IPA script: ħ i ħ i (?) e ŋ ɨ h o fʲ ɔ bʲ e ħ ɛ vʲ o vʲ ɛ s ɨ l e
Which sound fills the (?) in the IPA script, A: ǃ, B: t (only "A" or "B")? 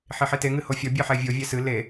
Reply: B